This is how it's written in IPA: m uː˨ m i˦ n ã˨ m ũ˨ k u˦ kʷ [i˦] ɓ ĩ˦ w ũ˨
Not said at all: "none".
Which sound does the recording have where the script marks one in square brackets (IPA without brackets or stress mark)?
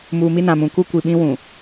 i˨